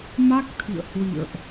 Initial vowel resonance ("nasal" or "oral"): oral